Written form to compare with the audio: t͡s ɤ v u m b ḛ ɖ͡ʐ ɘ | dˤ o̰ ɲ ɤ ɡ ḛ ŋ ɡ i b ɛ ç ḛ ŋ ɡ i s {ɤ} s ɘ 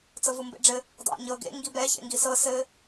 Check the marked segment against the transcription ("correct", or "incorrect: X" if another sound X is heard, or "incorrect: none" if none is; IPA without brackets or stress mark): correct